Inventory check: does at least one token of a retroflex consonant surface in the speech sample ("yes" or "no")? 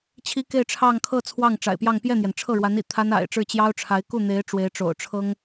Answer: yes